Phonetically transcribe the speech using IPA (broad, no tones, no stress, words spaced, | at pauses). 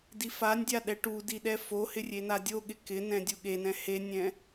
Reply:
difanʲdʲa ɗɛʈudi ɗɛfohɪ rʲenadʲoɠɪ kɪnɛ̃ dʲuɠenɛ̃ henʲɛ̃